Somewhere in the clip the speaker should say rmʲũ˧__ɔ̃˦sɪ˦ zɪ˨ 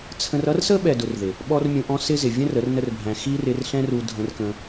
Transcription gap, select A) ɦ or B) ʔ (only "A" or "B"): B